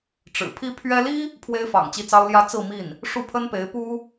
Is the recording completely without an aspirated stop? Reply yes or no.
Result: no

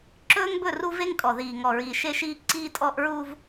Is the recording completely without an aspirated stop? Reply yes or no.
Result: yes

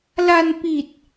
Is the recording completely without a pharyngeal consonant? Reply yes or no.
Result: yes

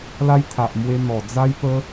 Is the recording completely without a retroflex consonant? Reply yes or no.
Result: yes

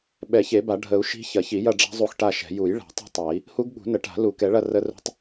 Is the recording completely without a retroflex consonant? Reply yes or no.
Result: no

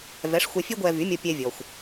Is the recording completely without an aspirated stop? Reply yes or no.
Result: yes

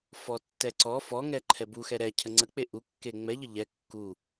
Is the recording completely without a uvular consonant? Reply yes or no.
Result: yes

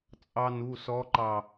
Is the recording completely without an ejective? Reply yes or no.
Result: no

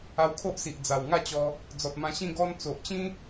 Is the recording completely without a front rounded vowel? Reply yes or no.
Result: yes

